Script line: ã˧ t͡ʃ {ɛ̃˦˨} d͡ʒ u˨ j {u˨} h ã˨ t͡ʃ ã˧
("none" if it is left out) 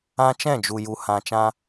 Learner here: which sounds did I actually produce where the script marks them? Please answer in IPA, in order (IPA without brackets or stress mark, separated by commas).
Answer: ɛ̃˦˨, u˨